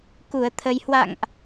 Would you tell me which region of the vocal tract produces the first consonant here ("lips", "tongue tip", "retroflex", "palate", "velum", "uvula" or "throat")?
velum